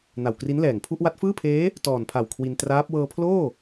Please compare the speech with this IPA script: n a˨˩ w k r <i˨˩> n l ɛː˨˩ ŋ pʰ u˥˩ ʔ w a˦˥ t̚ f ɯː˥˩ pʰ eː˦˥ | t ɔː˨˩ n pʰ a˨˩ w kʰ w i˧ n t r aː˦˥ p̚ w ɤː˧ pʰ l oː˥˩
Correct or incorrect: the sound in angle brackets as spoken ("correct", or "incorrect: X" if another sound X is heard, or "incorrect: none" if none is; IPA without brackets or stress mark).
incorrect: i˦˥